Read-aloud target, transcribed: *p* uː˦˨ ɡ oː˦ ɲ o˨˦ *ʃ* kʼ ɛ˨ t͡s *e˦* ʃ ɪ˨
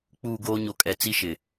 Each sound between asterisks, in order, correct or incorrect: incorrect: k͡p, incorrect: none, incorrect: i˦

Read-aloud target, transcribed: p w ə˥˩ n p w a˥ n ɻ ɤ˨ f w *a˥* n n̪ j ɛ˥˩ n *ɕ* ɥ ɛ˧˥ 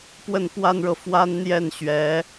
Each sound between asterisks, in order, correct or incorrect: correct, correct

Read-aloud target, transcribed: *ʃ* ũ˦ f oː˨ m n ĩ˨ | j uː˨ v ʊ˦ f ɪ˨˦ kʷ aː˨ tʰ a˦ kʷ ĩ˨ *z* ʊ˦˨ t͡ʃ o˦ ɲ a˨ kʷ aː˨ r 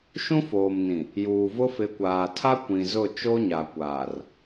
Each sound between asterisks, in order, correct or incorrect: correct, correct

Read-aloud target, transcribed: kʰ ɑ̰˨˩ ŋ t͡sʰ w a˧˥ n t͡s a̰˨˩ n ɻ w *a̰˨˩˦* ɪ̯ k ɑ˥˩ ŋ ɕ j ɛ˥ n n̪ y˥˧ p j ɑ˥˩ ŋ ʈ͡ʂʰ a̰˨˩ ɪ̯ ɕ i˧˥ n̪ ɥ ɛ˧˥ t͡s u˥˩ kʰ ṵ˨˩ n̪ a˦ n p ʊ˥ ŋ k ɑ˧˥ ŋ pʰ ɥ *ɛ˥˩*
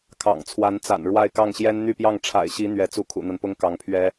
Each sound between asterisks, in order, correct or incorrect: incorrect: a˥˧, incorrect: ɛ˥

